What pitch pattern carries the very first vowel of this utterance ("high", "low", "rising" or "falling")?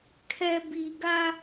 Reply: low